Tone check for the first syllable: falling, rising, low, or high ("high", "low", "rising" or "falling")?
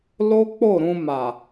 high